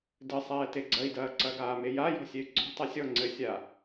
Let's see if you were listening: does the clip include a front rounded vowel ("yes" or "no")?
yes